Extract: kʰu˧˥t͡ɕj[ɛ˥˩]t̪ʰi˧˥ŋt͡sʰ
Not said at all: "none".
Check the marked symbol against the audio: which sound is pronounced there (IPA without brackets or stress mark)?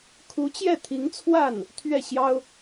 ɛ˥˩